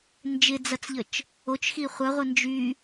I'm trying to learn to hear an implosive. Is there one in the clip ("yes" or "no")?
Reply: no